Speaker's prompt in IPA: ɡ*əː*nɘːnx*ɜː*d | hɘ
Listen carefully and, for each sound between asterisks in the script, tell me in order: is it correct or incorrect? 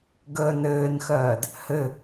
correct, correct

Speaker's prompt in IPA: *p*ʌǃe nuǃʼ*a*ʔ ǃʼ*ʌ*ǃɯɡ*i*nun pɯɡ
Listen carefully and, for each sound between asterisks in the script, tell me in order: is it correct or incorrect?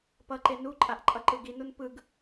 correct, correct, correct, correct

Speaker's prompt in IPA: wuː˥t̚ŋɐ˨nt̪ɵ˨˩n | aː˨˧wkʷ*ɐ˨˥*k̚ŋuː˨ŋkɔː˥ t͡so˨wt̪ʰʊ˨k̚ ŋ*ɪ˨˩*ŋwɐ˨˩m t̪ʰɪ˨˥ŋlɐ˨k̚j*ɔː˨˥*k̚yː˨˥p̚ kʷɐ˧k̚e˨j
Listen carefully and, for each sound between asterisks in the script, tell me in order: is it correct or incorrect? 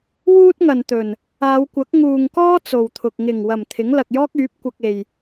correct, correct, incorrect: ɔː˥

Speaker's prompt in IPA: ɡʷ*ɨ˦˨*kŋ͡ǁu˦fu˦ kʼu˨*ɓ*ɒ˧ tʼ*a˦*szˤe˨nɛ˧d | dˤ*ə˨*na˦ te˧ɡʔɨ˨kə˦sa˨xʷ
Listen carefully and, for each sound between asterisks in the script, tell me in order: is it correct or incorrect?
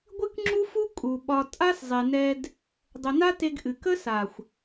incorrect: ɨ˦, correct, correct, correct

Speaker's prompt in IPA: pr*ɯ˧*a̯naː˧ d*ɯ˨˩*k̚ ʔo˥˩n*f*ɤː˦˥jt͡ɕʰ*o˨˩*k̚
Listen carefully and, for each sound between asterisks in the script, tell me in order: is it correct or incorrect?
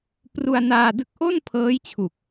incorrect: u˧, incorrect: ɯ˥˩, incorrect: pʰ, incorrect: u˨˩

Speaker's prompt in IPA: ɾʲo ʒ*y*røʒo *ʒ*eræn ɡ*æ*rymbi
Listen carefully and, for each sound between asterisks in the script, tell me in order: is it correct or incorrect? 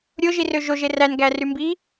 incorrect: i, correct, correct

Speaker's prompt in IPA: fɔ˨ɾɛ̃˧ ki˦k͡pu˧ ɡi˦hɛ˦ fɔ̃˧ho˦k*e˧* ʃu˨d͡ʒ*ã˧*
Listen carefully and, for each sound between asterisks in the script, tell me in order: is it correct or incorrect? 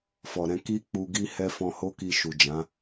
incorrect: i˧, incorrect: ã˨˦

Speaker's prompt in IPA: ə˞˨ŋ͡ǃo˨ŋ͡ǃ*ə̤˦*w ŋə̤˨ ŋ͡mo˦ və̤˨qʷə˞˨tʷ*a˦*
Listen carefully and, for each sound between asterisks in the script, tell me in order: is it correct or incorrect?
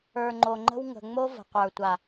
correct, incorrect: a˨

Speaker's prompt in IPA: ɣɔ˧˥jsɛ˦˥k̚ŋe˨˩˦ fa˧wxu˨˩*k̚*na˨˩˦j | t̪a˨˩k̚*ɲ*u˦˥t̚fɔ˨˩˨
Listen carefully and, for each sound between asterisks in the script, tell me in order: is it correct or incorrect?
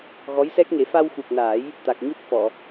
correct, correct

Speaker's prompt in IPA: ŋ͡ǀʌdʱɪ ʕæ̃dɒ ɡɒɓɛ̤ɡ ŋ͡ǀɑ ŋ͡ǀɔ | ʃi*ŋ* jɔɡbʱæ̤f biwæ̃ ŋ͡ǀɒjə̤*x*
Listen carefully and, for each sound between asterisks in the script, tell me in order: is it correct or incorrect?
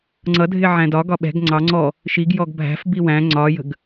incorrect: ɡ, incorrect: ɡ

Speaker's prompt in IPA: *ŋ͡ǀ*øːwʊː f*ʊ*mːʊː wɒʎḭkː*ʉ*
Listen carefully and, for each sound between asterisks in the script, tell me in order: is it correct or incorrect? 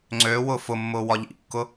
correct, correct, incorrect: ʊ

